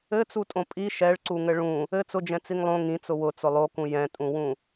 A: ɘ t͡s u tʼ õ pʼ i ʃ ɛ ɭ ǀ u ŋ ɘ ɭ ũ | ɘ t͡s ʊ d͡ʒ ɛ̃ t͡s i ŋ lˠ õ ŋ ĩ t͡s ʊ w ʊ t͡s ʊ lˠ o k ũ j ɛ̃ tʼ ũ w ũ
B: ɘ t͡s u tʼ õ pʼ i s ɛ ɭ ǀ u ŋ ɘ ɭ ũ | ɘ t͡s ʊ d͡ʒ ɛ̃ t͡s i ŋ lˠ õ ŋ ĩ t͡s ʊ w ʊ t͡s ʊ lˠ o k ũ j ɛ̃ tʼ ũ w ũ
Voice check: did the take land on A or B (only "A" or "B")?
A